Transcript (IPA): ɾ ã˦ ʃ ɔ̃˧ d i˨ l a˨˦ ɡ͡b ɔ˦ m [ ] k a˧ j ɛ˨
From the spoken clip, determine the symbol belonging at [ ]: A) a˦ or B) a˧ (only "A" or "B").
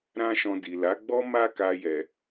A